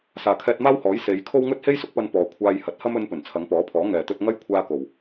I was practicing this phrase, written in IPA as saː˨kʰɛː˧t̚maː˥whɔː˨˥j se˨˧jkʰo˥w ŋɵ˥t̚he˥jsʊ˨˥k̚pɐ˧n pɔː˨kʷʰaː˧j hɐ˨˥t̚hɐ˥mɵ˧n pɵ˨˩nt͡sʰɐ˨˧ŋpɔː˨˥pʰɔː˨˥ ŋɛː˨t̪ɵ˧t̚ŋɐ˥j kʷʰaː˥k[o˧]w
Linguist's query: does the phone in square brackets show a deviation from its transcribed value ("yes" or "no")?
yes